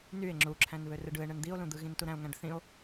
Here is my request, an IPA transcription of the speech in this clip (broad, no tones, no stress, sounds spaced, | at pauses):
n y e̯ ŋ͡ǁ u ǁʰ æ̃ n β ø r ɯ ɖ ɯ e̯ ɳ ɯ n d̪ i o̯ l ũ d̪ ɯ ɣ ĩ n t u ɾ æ̃ o̯ ŋ æ̃ ɖ θ ĩ o̯